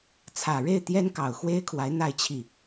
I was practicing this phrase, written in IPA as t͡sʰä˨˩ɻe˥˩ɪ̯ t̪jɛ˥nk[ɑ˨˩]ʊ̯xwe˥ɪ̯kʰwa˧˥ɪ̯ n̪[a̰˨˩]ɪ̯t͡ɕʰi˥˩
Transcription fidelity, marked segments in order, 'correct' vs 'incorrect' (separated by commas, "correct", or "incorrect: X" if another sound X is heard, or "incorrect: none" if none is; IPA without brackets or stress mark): correct, incorrect: a˥˧